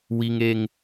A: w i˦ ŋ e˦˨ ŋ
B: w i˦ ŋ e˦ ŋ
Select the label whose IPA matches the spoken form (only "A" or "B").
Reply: B